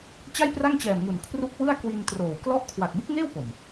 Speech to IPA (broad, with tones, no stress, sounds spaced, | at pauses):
t͡ɕ a˥˩ j p r a˥˩ ŋ t͡ɕ ɛː˨˩ m ŋ u˨˩ n kʰ r u˦˥ k̚ w ɯ˥˩ a̯ k w i˧ n t r oː˨˩ w k l ɔ˦˥ ʔ kʰ w a˨˩ k̚ b u˦˥ k̚ ŋ eː˥˩ w p o˨˩ m